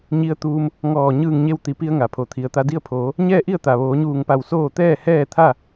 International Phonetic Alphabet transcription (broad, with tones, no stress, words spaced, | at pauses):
ɲi˧ə̯t̪uː˧m | ŋɔː˧˩ ɲɯː˧˩ŋɲe˧wt̪i˩pi˧ə̯ ŋa˩pʰo˩˧ t̪ʰi˩ə̯ t̪a˧di˥˨ə̯pʰoː˩˧ | ɲɛː˥˨ʔi˥˨ə̯t̪a˩ʋoː˩˧ ɲuː˧˩ŋpa˧˩w soː˥˨ t̪ɛː˥˨ hɛː˥˨t̪ʰa˥˨